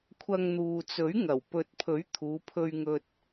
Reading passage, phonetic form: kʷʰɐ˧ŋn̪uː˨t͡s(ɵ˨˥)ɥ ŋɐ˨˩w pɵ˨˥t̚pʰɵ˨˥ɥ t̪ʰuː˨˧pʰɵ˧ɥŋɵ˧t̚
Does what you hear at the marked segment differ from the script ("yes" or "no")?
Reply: no